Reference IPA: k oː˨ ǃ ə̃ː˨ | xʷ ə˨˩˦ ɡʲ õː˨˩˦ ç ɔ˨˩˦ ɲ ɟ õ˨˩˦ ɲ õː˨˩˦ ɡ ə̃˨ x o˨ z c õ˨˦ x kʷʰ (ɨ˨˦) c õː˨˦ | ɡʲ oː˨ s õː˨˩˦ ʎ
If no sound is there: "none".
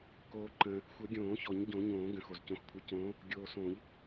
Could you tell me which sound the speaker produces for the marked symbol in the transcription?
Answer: ɨ˨˦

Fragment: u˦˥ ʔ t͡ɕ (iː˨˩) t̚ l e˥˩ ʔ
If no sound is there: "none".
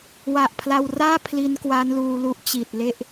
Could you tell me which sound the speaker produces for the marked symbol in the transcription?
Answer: iː˨˩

